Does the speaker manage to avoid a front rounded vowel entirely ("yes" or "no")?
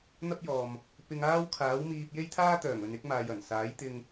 no